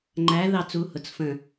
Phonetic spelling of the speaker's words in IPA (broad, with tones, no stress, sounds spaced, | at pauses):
ŋ͡ǃ æ˨˥ ð ɑ˥˧ t͡s u˨˥ h ʊ˩˧ t͡s f ə̃˧˩